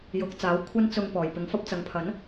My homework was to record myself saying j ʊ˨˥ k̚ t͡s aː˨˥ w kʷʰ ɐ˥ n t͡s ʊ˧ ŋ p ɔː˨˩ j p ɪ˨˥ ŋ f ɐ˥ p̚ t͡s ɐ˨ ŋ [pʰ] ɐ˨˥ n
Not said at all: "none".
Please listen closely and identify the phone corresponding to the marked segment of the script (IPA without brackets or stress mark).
pʰ